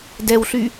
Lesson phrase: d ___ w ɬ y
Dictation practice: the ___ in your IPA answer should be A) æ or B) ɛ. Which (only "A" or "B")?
B